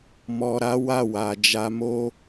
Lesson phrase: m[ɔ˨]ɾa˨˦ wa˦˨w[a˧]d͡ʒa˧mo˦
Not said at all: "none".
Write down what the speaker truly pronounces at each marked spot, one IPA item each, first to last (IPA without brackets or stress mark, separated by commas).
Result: ɔ˨, a˨